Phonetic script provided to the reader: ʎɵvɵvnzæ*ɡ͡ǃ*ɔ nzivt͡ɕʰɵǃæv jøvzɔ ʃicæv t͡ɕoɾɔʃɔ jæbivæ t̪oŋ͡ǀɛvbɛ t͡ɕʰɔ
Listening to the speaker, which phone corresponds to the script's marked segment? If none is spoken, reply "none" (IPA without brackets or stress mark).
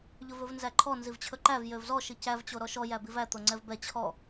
ǃʰ